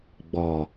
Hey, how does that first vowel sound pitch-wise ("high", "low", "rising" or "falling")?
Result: low